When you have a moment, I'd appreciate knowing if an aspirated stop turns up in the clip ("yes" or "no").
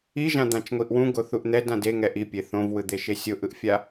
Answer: no